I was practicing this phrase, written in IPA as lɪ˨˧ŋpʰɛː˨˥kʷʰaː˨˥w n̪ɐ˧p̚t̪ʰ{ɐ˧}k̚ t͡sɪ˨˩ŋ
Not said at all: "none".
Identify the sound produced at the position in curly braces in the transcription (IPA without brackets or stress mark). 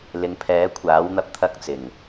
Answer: ɐ˧